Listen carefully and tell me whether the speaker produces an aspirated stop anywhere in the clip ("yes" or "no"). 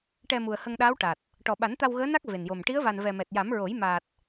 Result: no